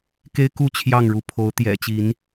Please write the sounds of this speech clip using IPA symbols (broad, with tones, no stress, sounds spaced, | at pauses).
k e˦ ɪ̯ k u˥˨ t͡ɕʰ j ɑ˥˨ ŋ ɻ u˨˦ pʰ o˨˦ ʊ̯ t̪ j ɛ̰˨˩ t͡ɕ i˨˦ n